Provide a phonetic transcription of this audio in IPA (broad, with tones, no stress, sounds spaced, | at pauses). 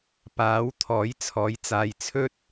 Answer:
p aː˨˥ w t̪ʰ ɔː˨˥ j t͡sʰ ɔː˨˥ j t͡s aː˨ j t͡sʰ ɵ˥ t̚